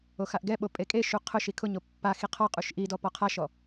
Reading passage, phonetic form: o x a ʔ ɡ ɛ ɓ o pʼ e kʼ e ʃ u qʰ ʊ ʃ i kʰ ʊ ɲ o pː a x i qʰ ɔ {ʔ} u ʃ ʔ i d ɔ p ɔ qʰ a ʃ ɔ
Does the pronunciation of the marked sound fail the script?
yes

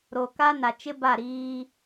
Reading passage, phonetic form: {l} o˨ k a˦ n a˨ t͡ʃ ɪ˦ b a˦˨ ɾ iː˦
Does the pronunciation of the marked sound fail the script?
yes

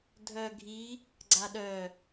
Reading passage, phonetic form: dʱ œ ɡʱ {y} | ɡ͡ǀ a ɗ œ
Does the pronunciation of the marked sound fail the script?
yes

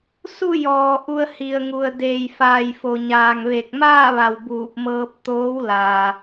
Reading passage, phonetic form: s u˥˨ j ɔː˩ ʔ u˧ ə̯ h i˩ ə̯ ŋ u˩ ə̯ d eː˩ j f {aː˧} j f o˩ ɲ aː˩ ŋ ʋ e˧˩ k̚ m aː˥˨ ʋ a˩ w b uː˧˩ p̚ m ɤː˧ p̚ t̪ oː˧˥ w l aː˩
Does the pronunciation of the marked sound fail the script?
yes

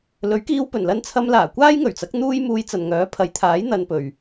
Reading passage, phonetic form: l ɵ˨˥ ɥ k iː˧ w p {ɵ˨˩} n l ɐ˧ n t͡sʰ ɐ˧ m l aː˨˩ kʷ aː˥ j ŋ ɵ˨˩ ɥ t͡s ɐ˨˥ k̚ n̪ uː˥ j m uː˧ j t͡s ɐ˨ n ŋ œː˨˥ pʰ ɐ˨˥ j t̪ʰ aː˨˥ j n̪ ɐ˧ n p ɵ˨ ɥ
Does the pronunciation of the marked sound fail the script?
no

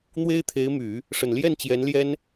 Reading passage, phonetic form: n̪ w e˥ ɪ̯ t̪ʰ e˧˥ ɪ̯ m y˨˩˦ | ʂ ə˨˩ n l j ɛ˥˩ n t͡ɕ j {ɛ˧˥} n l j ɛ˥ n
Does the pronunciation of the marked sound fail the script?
no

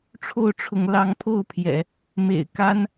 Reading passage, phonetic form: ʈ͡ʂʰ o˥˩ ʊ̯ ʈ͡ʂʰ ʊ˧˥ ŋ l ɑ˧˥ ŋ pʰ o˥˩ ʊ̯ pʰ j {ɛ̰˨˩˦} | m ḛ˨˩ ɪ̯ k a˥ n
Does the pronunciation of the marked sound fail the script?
no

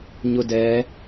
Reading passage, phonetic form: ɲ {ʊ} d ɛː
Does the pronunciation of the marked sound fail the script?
no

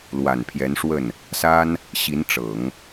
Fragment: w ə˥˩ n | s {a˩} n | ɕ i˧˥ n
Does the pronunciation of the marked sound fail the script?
yes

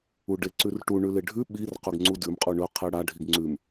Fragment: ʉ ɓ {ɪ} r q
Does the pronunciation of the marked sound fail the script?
yes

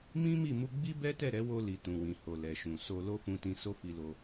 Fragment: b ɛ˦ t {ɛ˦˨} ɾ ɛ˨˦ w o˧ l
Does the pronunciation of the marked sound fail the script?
no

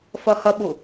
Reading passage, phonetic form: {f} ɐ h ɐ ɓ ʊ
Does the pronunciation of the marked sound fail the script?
no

